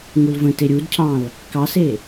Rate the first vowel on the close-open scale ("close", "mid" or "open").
close